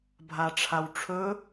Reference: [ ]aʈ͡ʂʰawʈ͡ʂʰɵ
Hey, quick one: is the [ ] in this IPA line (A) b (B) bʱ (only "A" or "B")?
B